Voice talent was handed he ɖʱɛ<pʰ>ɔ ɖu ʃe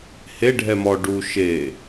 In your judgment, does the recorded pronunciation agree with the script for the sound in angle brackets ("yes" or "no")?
no